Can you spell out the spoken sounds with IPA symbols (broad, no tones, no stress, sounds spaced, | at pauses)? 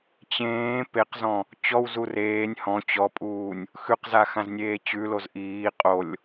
t͡ɕ ẽː p e q z ɔ̃ | t͡ɕ ɔ w z u r eː nʲ h ɔ̃ t͡ɕ ɔ pʼ uː nʲ | x ʉ q z a x ã z nʲ eː t͡ɕ ʉ l o z ʔ iː qʼ o lʲ